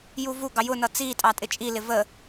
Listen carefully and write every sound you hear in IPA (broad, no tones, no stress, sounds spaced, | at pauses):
j u v u ɡ ɑ j ʊ n ʌ t͡s i tʼ ɑ tʼ ɪ t͡ʃʼ i l ɪ v ə